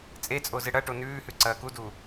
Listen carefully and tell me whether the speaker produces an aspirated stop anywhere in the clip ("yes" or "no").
no